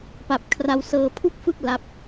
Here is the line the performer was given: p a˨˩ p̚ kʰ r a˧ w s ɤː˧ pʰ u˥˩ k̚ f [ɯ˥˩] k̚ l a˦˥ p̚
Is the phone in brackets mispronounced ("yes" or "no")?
no